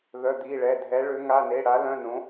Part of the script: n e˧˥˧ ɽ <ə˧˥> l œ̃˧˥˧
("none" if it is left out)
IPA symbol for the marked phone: a˧˥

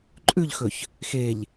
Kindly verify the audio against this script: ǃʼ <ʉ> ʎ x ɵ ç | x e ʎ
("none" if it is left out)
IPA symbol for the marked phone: ʉ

